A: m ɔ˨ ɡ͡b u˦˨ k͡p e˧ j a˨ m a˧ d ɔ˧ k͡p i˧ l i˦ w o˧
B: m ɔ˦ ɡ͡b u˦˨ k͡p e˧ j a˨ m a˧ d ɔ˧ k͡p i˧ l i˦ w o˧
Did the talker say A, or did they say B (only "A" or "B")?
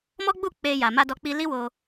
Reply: B